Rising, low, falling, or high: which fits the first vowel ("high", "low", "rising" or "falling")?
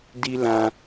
high